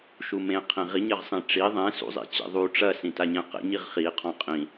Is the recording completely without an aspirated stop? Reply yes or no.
no